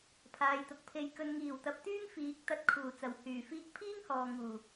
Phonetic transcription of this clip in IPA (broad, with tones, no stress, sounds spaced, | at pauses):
pʰ aː˨ j t̪ ʊ˨ k̚ pʰ e˧ j k ɵ˧ n ŋ iː˨˩ w t̪ ɐ˨˥ p̚ t̪ yː˥ ŋ f iː˨˥ k̚ t̪ ɐ˧ t̚ kʰ uː˨˩ t͡s ɐ˨˩ w h yː˨˩ f iː˧ k̚ pʰ iː˥ ŋ h ɔː˨ ŋ uː˨˩